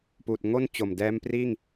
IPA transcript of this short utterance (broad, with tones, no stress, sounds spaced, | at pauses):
p uː˨˩ t̚ ŋ o˥˩ n t͡ɕ o˨˩ m d ɛː˦˥ m p r iː˥˩ ŋ